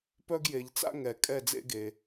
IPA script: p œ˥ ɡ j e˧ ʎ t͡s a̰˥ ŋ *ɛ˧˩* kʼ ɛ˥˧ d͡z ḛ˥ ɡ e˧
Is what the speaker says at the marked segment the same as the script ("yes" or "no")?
yes